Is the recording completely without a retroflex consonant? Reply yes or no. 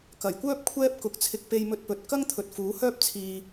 yes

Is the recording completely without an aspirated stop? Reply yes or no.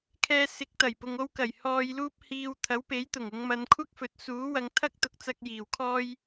no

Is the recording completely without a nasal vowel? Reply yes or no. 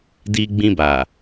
no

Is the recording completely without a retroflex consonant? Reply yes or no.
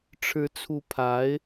no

